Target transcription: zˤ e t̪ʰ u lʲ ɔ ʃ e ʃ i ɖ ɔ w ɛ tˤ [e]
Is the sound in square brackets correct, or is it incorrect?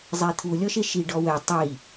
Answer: incorrect